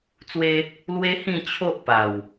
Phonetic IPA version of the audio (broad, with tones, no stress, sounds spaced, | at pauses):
t͡s w e˦ | l w e˦ h ĩ˥˧ t͡ɕʰ o˦ ʔ p a˨˩ w